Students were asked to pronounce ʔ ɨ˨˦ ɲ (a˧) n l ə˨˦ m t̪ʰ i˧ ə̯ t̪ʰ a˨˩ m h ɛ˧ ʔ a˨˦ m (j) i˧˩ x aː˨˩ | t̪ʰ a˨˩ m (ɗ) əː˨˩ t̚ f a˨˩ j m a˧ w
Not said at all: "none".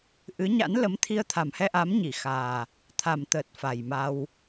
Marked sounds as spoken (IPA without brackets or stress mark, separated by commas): a̰˧˥, ɲ, t̪